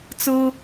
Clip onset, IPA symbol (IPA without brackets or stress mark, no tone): t͡s